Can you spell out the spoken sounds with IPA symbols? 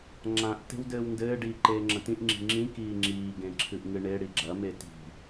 ŋ͡ǁ ã ʔ t e̤ w d ɘː w n d ɘː ɖ iː ǃ eː ŋ͡ǁ ɐ̃ t ĩ ʔ ŋ͡ǁ i̤ ŋ͡ǁ ĩ k iː ŋ͡ǁ iː ɡ ẽ ǁʰ ɨ ʔ ŋ ɨ ɳ e ɽ i ɡ͡ǁ ɐ m e t i̤

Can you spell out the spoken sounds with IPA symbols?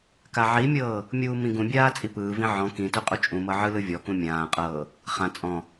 k a ʕ i mʲ ɤː | mʲ uː m ĩ ɡ ũ bʲ aː t͡sʼ i p ɯː v ĩ ʕ ɔ̃ k ĩ t u qʼ u t͡ʃʼ ũ m ɤ ʕ ɯ l ɯ vʲ ɔ k ũ mʲ ãː qʼ ɤː | χ ã t͡sʼ ɔ̃

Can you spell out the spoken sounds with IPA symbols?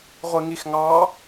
ʁʷ i ŋ i x ŋ ɑ

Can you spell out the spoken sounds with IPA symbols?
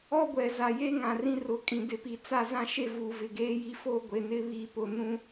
ɔ˦ ɡʷ ɛ˨ z a˨ j e˦ ŋ ã˨ r ĩ˦ r ʊ˨˦ kʼ ĩ˨ d ɪ˨˦ p i˨ t͡s a˦ z ã˦ ʃ e˦ v uː˨ v ɪ˨ ɡ eː˦ j i˦ f o˦ ɡʷ e˨ n ɪ˦ β iː˨ p ʊ˨ n ũ˦

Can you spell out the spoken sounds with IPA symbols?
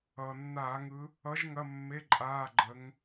ʌː˩ nː aː˧˩˧ ŋ ɯ˨˦ | ʌ˨˦ ʒ ŋ ɐ˧˥˧ mː e˧˥˧ ǃʼ aː˧˥˧ ɡ͡ǃ ə˨˦ ŋ

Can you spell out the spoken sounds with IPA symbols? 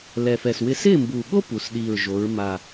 l ɛ˨˩ f ɛ˨˩ s w ɪ˧˥ s ɪː˥˨ m b u˨˩ ɠ o˥ p u˩˧ s ɗ iː˨˩ ɹ ʒ o˩˧ ɹ m a˨˩

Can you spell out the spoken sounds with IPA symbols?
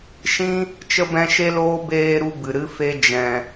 ʃ ĩ˦ | t͡ʃ ə˦ b ɛ̃˦ ʃ e˦ l oː˦ b eː˧ ɾ u˧ b ɨ˨ ɾ ɨ˦ f e˦ d͡ʒ ɛ̃˧

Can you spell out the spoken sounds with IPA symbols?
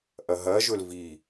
ʔ ɐ ɦ ɐ ʒ ɵ l v i

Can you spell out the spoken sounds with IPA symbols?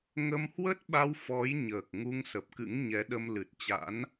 ŋ ə˧ m h w ə˦˥ t̚ ɓ a˧ w f ɔ˨˦ j ɲ əː˨˩ k̚ ŋ u˧ ŋ s ə˨˩ p̚ k ɨ̰˧˥ ŋ ɲ ɛ˨˦ ɗ ə˧ m l ɨ˨˩ t̚ t͡ɕ a̰˧˥ n

